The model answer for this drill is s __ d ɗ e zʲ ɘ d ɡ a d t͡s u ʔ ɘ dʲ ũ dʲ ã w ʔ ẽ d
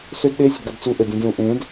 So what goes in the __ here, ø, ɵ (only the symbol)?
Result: ø